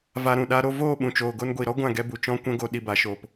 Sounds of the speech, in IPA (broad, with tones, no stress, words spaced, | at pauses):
va˧ɾũ˨ɗa˦ɾo˦ voː˦˨ɓũ˨t͡ʃoː˨ ɡo˧nɡʷi˨ɾɔ˦ ɡʷã˦˨ɡɛ˧bu˨ t͡ʃɔ̃˦ kʷɛ̃˦ɡo˧ ɗi˧ba˨˦ʃoː˧p